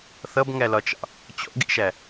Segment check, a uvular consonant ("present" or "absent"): absent